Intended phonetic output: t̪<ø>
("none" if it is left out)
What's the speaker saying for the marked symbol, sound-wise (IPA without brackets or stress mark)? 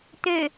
ø